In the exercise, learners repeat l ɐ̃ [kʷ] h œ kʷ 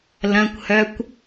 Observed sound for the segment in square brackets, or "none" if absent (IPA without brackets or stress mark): kʷ